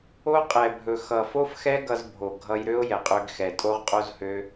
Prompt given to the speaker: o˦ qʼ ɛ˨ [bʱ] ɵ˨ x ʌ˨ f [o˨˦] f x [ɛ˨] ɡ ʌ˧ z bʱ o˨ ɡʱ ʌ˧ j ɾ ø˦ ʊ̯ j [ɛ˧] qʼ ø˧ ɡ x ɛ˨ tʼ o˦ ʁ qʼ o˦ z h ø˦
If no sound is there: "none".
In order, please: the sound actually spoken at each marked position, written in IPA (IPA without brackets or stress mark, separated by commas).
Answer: bʱ, o˦, ɛ˦, ɛ˨